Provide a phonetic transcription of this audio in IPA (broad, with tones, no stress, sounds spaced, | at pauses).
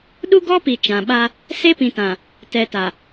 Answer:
ɗ u˦ ɡ ɔ˦ p i˨ t͡ʃ ã˨ ɓ a˦ | s e˦ p ĩ˨ t ã˨ | t ɛ˨ t a˨